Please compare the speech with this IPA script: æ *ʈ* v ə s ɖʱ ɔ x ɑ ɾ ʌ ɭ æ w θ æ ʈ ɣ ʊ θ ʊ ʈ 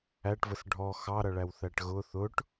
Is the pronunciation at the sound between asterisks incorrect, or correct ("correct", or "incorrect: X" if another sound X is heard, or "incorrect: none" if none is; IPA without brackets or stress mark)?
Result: correct